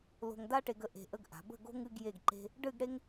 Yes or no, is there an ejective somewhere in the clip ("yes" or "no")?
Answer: no